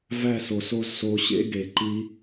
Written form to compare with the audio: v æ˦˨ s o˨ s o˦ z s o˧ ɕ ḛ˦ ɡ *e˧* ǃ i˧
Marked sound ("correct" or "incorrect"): incorrect